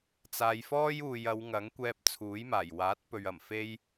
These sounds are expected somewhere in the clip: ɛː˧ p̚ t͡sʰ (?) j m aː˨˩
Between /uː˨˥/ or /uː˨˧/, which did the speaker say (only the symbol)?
uː˨˥